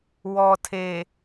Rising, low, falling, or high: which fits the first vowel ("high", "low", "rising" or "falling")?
low